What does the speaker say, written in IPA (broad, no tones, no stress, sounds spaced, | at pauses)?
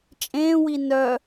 t͡ʃʼ ẽː w i n œ